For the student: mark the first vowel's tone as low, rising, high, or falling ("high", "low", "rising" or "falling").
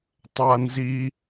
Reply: high